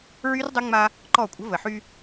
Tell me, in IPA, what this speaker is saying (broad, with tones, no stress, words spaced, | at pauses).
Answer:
ɹy˦rdˤə˦ŋ͡ma˦ | ǃɔ˦˨kʷʼə̤˦ və˨ħy˦